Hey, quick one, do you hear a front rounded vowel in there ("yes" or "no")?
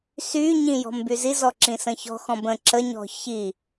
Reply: yes